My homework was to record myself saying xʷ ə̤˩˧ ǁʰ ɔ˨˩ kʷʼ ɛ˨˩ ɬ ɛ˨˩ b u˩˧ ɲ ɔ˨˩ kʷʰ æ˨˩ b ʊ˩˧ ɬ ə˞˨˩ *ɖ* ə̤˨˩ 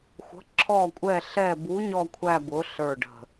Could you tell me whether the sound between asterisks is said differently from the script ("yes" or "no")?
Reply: no